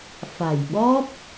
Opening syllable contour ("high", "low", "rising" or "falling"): low